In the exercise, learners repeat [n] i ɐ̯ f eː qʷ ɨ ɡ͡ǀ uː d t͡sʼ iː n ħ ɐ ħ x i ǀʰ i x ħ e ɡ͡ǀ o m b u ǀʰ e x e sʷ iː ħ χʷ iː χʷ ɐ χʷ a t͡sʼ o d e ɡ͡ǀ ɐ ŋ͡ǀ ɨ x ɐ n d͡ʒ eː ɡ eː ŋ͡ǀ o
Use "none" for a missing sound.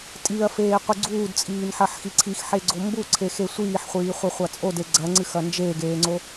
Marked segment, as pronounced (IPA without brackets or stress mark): tʼ